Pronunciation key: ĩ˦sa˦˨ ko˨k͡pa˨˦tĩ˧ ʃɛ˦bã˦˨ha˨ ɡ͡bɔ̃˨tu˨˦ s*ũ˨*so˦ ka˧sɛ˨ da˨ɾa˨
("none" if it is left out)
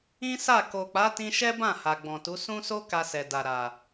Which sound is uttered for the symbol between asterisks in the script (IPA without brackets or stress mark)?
ũ˦